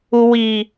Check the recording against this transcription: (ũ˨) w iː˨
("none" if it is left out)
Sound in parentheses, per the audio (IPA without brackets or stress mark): u˨